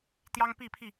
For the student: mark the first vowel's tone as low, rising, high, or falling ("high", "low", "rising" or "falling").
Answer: high